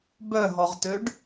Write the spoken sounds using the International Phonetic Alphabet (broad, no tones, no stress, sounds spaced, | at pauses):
b œ ɦ ɔ ʁ t ø ɖ